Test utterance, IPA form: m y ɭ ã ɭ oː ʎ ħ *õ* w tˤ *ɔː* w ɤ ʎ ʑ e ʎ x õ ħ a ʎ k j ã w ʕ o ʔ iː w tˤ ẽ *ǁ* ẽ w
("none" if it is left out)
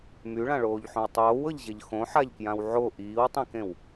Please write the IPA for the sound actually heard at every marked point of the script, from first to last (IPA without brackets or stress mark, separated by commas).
õ, oː, k